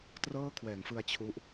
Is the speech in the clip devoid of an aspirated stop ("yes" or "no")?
no